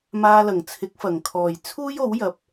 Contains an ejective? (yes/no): no